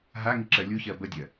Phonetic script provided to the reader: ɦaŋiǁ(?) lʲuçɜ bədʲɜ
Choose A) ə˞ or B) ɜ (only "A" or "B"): B